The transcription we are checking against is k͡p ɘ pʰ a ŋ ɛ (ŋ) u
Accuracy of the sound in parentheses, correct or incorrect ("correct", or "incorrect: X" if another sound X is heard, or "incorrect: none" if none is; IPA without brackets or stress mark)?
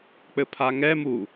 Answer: incorrect: m